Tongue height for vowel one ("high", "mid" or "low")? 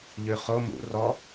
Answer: high